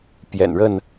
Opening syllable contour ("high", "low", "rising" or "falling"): low